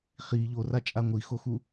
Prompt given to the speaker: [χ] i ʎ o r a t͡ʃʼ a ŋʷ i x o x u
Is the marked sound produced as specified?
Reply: yes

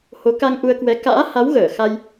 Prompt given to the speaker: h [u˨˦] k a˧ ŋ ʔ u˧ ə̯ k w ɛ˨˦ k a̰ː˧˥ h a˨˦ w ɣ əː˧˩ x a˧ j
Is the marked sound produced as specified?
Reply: no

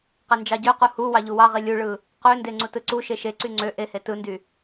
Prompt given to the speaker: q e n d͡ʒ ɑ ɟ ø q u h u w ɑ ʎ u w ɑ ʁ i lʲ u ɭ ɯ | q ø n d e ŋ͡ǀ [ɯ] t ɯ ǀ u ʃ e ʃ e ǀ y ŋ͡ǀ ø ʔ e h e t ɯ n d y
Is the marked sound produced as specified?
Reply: no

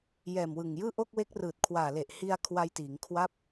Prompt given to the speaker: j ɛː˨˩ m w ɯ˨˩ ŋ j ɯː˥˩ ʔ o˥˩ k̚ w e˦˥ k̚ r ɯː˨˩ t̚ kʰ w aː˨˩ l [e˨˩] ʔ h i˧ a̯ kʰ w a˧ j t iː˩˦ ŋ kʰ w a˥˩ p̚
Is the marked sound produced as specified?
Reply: yes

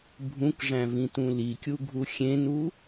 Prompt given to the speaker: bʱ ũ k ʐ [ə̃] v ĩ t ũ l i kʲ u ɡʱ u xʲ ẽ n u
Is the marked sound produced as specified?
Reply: no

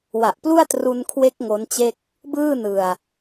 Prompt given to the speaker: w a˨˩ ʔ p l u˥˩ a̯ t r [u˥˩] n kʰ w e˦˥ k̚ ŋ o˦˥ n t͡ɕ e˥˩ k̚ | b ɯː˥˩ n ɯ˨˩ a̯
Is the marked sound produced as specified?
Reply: no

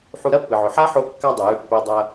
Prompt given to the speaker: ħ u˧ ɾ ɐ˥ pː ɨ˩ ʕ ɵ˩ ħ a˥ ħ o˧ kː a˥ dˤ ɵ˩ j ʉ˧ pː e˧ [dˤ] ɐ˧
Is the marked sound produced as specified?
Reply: yes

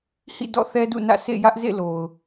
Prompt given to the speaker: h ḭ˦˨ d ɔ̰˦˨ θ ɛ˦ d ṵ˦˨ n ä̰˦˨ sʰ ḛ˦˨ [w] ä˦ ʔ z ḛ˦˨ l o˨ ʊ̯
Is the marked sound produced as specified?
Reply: no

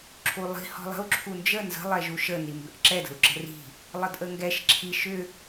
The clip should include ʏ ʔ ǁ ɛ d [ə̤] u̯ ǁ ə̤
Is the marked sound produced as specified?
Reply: yes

